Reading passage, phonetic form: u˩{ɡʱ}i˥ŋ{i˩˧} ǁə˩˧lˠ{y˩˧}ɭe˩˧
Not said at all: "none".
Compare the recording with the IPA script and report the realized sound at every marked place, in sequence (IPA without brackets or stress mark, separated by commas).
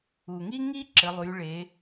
ŋ, i˥, y˩˧